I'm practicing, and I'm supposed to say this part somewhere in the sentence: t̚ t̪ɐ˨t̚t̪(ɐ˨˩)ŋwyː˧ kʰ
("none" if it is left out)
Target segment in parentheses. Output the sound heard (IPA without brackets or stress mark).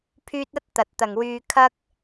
ɐ˨˩